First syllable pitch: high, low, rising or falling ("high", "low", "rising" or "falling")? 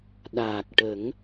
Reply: low